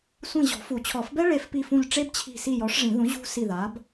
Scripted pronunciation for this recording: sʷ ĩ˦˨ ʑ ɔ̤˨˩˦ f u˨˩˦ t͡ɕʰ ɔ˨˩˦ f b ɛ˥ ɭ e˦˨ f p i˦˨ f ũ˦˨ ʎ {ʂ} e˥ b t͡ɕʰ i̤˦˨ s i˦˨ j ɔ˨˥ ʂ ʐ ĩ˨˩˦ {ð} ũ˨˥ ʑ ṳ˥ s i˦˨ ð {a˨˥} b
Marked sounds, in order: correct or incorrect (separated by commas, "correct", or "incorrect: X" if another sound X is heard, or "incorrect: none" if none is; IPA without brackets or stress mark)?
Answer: incorrect: ʈ͡ʂ, correct, correct